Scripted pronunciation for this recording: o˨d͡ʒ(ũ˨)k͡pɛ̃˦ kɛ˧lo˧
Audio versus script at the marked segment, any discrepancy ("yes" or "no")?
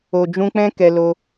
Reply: yes